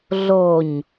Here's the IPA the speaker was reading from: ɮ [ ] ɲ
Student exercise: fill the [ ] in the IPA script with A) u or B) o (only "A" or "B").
B